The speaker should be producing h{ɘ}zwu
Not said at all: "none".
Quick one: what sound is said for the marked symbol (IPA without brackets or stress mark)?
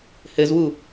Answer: ɘ